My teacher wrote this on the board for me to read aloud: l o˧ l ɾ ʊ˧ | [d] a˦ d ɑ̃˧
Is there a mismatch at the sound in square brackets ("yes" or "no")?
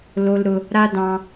yes